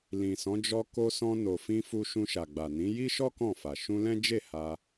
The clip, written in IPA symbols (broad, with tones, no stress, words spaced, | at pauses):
lĩ˨sɔ̃˨˦ d͡ʒɔ˧ ko˧sɔ̃˧no˨fĩ˧ fu˧ʃũ˧ʃa˨ ɡ͡ba˨nĩ˨˦ ji˦ʃɔ˦ kɔ̃˦˨fa˨ ʃũ˧lɛ̃˦d͡ʒe˦˨ ha˧